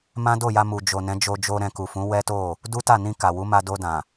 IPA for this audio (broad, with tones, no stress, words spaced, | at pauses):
mã˦do˦˨ja˧mu˨ d͡ʒo˨nɛ̃˨˦d͡ʒo˧d͡ʒo˧ ɾɛ̃˧ku˨fũ˨˦ wɛ˦to˦˨ | du˦ta˦˨nĩ˧ ka˨wu˨˦ma˧ do˧dã˨